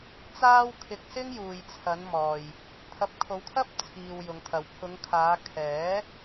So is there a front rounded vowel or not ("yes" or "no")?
no